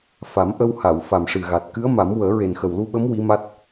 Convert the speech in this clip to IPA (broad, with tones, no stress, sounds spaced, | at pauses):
f a˨˩˦ m ʔ ə˧ w h a˨˩˨ w f a˨˩ m ʂ ɨ˨˩ ɣ a˨˩ t̚ k ɨ˧˥ ə̯ m a˨˩˦ m w əː˨˩˦ ɹ e˨˩ n x ə˨˩ w l u˧ ɓ ə˧˥ m w i˧˥ m a˦˥ t̚